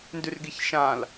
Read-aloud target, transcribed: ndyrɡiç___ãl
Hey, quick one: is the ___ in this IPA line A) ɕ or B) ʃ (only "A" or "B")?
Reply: B